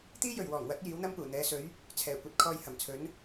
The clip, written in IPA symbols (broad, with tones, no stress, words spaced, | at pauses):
t̪iː˥jɵ˨˩ɥwɔː˨˩ŋwɐ˨˥t̚ jiː˨˥wn̪ɐ˥mpuː˨˩ n̪ɛː˨˧sɵ˨˥ɥ | t͡sʰɛː˨˩kʷɐ˧t̚ kʰɔː˧jhɐ˨˩mt͡sʰɵ˨˥n